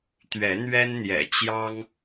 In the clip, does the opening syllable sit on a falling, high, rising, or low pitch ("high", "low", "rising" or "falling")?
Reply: rising